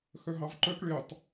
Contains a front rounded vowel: yes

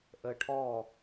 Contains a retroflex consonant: yes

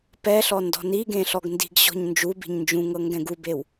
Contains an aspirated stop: no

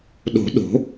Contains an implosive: yes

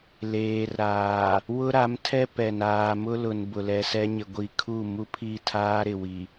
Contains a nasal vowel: no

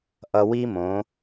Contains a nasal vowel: yes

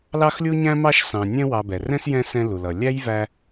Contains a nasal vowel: yes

